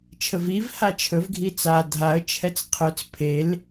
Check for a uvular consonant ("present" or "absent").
present